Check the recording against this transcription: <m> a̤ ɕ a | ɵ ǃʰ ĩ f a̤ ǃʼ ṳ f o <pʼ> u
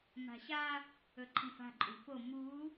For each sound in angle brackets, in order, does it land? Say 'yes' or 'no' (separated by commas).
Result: yes, no